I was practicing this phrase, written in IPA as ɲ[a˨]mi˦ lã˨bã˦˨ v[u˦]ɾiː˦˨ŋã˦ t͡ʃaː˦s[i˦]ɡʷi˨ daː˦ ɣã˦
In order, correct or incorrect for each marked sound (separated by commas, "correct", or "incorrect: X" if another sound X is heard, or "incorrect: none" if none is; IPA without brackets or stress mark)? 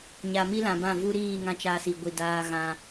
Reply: correct, correct, incorrect: i˨